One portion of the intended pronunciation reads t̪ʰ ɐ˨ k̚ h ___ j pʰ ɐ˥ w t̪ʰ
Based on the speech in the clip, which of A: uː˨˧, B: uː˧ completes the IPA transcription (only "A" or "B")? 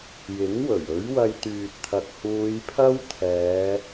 A